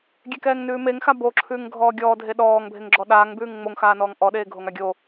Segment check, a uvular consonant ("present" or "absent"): absent